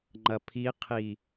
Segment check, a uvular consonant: present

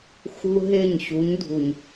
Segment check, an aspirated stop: absent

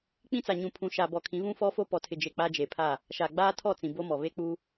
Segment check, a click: absent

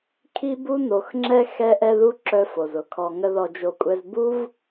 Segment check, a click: present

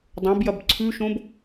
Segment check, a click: present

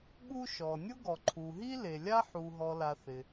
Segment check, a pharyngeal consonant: present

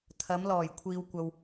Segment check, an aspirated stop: present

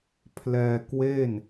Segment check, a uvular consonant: absent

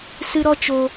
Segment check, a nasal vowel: absent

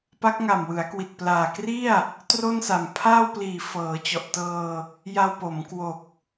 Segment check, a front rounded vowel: absent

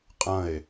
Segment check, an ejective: present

